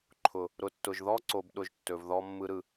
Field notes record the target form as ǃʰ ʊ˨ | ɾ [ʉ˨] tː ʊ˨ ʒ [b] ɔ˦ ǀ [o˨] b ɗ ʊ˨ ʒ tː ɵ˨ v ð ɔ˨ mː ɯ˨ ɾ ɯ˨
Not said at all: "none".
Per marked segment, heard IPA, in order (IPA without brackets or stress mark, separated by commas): ʊ˨, ð, o˨